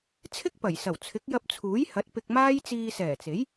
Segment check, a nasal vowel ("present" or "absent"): absent